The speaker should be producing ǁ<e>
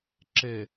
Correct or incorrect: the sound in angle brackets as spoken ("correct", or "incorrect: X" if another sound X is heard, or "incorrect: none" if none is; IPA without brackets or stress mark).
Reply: correct